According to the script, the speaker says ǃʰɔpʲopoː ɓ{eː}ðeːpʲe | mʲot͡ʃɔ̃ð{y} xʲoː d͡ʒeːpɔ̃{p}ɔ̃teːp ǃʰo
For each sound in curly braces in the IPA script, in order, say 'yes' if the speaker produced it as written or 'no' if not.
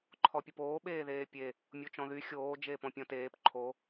yes, yes, no

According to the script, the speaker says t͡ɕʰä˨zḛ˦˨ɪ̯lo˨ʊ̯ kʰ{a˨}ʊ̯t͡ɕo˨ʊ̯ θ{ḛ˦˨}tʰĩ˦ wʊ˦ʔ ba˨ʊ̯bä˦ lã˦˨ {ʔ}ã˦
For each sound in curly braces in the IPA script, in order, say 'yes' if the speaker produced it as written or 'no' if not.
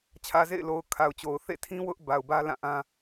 yes, yes, yes

